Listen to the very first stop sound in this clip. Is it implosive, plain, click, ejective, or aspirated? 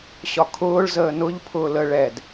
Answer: aspirated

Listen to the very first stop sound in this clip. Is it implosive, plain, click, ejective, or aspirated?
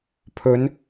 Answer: aspirated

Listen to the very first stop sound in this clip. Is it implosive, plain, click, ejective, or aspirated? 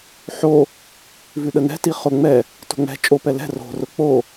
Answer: implosive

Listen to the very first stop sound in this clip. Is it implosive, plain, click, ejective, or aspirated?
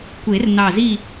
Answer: plain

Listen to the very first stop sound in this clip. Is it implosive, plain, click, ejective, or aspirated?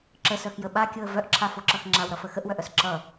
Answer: click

